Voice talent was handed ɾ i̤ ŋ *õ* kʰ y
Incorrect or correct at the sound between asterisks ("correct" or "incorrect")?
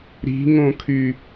correct